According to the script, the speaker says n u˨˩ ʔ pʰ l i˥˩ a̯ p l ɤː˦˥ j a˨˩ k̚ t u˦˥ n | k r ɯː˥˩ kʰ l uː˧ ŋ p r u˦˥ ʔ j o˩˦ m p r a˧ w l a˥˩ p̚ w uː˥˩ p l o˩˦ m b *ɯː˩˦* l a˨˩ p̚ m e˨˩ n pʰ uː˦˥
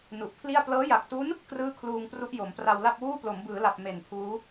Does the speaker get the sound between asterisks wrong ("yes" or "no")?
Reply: no